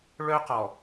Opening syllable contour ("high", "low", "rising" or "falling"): high